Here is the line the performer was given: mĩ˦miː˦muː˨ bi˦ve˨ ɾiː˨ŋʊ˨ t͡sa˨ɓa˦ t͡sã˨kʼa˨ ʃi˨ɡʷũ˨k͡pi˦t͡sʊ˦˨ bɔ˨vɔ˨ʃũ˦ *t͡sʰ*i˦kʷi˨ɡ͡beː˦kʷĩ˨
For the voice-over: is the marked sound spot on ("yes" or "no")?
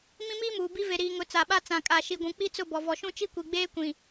no